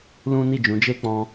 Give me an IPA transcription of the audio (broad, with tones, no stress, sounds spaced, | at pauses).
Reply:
l ũ˦ n i˦˨ d͡ʒ ũ˨˦ d͡ʒ e˦ k͡p ɔ̃˧